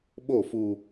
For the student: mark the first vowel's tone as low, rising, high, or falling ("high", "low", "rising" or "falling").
falling